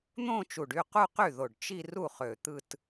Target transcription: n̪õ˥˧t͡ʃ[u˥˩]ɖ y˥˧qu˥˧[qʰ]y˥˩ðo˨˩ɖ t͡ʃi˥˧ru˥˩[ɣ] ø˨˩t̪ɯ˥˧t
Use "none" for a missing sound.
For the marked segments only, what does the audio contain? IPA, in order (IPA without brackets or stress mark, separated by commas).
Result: u˨˩, q, χ